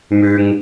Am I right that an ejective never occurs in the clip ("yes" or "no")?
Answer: yes